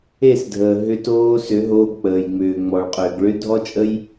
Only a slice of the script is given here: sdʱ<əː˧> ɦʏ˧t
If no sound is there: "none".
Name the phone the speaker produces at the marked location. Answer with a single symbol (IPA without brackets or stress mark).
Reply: əː˨